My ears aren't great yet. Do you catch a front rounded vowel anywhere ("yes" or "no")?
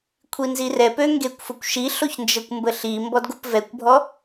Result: yes